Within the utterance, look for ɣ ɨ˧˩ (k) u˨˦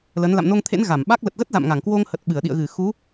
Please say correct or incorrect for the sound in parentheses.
incorrect